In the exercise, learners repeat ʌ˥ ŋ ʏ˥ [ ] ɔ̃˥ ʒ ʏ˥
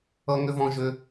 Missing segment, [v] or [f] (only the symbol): v